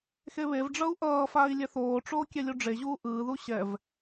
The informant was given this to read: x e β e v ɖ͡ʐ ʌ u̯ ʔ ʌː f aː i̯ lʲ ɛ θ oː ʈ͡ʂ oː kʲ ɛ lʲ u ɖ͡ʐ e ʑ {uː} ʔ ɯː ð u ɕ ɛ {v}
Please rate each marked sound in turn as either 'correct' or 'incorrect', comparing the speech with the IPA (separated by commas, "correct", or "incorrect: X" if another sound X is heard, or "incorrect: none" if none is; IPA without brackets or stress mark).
correct, correct